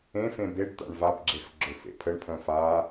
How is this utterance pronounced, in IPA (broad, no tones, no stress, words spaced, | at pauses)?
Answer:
ẽfẽ beɖt̪a̰ɳ vabɡ͡ǁef ɡ͡ǁøfḛpʰəɳpʰœ̃ːf aː